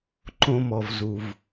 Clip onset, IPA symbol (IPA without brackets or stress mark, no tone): ǃ